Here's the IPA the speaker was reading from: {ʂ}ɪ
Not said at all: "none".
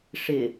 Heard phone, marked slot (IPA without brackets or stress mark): ʂ